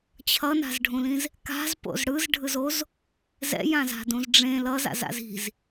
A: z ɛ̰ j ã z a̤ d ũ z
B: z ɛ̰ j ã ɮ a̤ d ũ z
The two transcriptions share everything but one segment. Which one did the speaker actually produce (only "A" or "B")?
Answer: A